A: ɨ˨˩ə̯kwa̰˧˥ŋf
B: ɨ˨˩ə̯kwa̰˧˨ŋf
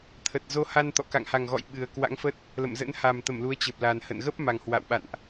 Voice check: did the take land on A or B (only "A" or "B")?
A